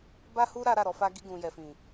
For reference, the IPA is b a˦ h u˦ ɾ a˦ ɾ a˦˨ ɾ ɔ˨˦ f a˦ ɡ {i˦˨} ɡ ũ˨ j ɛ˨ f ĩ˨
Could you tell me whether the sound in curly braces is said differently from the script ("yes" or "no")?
yes